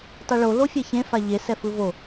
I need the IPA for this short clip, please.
tˤɯɭo lofʲɛçẽ faʎe sɛfɯvo

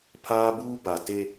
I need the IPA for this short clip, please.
pʰaː˦buː˦ba˨ te˦

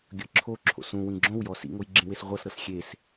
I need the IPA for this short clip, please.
ɡʲɤǁʰoǁʰo̰s ũ wĩɡ͡ǁõwjɔ sḭŋoj ɡ͡ǁĩwesʁʷɤsɾɤs xʲes

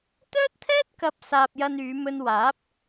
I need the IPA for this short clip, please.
t̪œː˥t̚t̪ʰɛː˥t̚kɐ˨˥p̚ saː˧p̚jɐ˧nyː˨˧mɵ˧n waː˨˥p̚

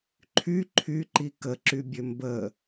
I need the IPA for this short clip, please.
ǃʰy ǃʰyǃi kəǁybʲø mbə

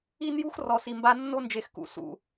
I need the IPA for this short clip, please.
i˦n ju˦x rɔ˨si˨mba˦ nːo˦nd͡ʒe˨x kṵ˨ sṵ˨

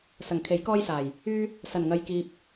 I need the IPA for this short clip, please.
sɐ˨˩ŋkʰe˨˥j kɔː˥jsaː˨˩j | yː˥ | sɐ˨˩nŋɐ˨jkiː˨p̚

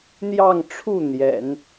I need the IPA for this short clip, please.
n̪jɑ˥˧ŋʈ͡ʂʰu˥˩ n̪jɛ̰˨˩˦n

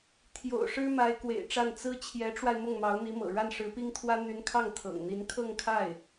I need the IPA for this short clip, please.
t̪ʰjo̰˨˩ʊ̯ʂɻ̩˥ma˧˥ɪ̯ kwḛ˨˩ɪ̯ʈ͡ʂa˥˩n t͡sɹ̩˥ t͡ɕʰjɛ˧˥ʈ͡ʂwa˧ɪ̯ mʊ˥˩ŋmɑ˧˥ʊ̯n̪i˧˥mɤ̰˨˩ ɻa˥˩nʂɻ̩˧˥pi˥ŋt̪ʰwä˥ n̪y˧˥nkʰɑ˥˩ŋ t̪ʰɤ̰˨˩ŋ n̪i˧˥n kʰɤ˥˧ŋkʰa˥˩ɪ̯

